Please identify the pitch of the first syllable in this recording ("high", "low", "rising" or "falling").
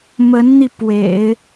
rising